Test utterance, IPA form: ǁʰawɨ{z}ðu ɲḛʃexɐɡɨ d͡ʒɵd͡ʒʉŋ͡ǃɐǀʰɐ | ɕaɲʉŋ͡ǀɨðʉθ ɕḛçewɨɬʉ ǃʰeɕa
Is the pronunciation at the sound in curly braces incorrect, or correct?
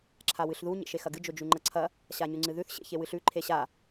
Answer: incorrect